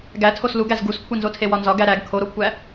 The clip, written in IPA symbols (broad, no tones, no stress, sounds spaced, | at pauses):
ɡ æ tʰ o s l u ɡ æ z ɡ u s kʷʰ i n z o tʰ e w ɒ n z ɒ ɡ æ ɾ æ ɡ kʰ o ɾ o kʷʰ æ